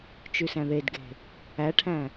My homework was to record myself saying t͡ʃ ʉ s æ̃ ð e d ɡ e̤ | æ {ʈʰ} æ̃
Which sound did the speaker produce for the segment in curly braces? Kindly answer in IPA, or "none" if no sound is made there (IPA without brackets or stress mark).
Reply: ʈʰ